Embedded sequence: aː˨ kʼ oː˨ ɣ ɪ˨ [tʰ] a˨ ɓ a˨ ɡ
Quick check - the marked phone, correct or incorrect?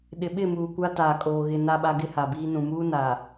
incorrect